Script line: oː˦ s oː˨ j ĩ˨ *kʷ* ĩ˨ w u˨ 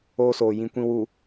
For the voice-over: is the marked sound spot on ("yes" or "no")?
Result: yes